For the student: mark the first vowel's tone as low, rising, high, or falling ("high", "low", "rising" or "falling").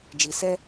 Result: low